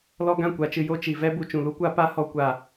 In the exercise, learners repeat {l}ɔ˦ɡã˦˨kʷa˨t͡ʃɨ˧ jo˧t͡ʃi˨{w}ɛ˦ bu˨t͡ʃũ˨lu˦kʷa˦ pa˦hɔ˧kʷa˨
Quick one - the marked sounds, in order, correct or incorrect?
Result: correct, incorrect: v

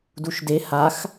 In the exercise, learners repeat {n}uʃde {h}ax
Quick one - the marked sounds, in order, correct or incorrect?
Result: incorrect: d, correct

